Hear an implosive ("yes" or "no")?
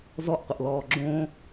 no